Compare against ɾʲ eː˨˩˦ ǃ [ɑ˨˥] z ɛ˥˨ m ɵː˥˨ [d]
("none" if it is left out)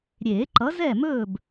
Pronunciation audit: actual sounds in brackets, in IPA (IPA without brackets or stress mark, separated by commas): ʌ˨˥, b